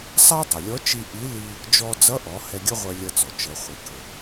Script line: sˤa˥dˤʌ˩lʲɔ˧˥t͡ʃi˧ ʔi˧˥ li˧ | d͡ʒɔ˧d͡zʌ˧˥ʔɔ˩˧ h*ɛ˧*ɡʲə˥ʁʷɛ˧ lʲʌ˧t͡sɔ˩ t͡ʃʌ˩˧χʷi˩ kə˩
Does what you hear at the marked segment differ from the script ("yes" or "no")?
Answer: no